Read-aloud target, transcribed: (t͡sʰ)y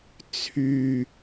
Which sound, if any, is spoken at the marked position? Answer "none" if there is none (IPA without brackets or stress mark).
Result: t͡sʰ